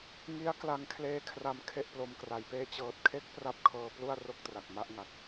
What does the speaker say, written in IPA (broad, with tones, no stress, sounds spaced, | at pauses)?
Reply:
ŋ i˦˥ a̯ k l a˧ ŋ kʰ l eː˦˥ kʰ r a˧ m kʰ e˥˩ ʔ p l o˧ m k r a˩˦ j p eː˥˩ t͡ɕ ɤː˨˩ t̚ kʰ e˦˥ k̚ p r a˦˥ p̚ kʰ ɤː˧ p l u˥˩ a̯ r o˥˩ k̚ t r a˨˩ k̚ m a˥˩ ʔ ŋ a˨˩ k̚